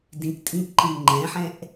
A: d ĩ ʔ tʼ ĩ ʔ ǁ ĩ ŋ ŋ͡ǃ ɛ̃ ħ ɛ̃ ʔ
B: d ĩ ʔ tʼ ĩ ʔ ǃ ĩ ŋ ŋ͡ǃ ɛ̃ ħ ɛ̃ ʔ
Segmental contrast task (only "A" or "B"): B